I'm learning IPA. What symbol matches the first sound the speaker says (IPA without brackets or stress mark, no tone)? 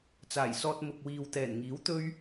t͡s